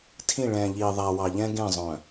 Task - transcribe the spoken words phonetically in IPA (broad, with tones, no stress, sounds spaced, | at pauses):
tʰ ĩ˦˨ ɭ ɛ̃ː˨ ʎ iː˨ ðˤ æ˨ w ɑ˨ ʎ ɛ̃˦ ɡ ẽ˦˨ zˤ œ̃˨